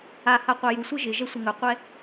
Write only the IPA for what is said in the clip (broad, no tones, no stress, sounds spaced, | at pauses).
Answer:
a h a qʷ a j u sʷ ɘ ʒ ɪ ʒ ɛ sʷ ɘ ŋ ɵ qʷ ɛ